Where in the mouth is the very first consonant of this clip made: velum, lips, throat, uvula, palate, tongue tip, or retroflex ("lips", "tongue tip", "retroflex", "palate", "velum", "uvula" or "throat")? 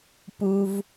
lips